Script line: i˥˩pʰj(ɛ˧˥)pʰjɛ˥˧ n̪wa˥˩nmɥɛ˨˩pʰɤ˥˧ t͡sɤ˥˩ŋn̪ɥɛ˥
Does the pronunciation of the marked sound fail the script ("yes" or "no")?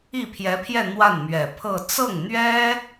no